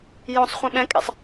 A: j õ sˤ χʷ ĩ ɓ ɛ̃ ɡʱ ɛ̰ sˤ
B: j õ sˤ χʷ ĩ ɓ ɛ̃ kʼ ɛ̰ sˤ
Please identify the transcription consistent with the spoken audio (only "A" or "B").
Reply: B